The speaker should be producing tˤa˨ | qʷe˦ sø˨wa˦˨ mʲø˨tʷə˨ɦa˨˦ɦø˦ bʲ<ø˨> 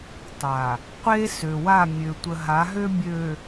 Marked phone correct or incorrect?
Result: correct